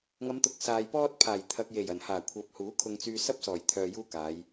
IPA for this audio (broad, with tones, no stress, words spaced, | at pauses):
ŋɐ˨˧mt̪ʊ˨˥k̚ saː˨jpɔː˥t̚ pʰaː˨˩jt̪ʰɐ˨k̚je˨˩j ɐ˨˩nhaː˨˩kʷʰɐ˨˥p̚ huː˨˥kʰʊ˧ŋt͡syː˧ sɐ˥p̚sɔː˨˩jt̪ʰœː˨ juː˥kaː˨˧j